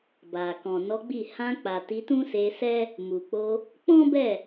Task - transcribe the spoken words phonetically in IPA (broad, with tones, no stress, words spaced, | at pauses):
ba˨ kɔ̃˨nɔ˨˦ɡ͡bi˦˨ hã˧k͡pa˨ ti˨˦tũ˦se˧sɛ˦ | mu˨k͡po˧ | k͡pɔ̃˦bɛ˦˨